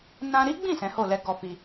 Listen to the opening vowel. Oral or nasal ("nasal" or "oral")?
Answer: nasal